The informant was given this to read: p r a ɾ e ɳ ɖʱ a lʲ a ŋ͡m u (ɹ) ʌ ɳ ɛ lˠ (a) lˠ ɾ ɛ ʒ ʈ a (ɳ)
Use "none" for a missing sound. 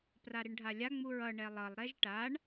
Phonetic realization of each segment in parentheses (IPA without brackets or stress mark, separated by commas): ɹ, ʌ, ɳ